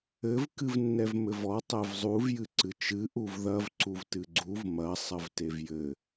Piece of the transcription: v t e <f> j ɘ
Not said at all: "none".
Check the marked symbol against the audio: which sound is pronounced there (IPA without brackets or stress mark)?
v